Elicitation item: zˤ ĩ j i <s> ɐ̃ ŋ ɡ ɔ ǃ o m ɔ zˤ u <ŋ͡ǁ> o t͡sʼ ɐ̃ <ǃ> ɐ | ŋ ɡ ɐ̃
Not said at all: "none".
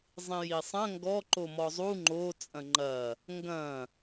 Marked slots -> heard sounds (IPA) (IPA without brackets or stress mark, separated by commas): sˤ, ŋ͡ǃ, ŋ͡ǃ